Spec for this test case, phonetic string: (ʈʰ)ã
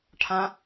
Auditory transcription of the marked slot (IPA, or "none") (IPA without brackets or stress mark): ʈʰ